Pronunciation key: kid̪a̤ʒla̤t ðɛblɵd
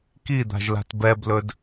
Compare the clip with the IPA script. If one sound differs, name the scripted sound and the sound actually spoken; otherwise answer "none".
ð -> b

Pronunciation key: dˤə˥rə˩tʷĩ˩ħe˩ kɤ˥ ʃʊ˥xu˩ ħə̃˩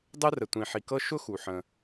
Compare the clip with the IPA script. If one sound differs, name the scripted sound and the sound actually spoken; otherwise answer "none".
e˩ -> i˩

